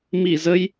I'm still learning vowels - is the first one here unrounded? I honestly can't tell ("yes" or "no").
yes